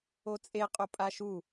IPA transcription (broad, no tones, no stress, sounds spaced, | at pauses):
o t͡sʼ e qʼ o pʼ a ʃ u